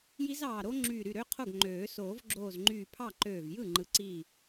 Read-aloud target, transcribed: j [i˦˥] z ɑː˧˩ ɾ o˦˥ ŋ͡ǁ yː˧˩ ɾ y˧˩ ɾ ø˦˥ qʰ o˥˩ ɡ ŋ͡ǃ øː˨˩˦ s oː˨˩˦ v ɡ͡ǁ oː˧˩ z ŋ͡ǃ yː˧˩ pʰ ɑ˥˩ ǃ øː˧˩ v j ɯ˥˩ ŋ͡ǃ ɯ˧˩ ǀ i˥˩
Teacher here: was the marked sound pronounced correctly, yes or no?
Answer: yes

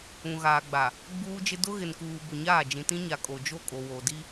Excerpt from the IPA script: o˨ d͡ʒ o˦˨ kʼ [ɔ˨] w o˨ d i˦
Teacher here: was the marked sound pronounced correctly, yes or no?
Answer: no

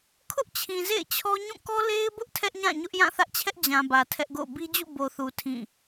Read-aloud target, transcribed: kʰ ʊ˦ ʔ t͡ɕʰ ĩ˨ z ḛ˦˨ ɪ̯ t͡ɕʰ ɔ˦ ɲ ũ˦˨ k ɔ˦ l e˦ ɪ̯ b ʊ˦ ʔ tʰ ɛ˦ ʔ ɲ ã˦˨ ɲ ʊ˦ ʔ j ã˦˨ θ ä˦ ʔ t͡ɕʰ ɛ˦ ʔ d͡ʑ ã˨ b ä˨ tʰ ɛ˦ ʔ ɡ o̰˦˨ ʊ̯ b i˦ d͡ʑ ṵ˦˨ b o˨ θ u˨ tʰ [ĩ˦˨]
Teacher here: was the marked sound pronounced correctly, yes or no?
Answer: yes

